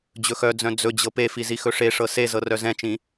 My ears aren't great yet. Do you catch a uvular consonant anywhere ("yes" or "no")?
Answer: no